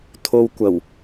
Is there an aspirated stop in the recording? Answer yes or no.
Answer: yes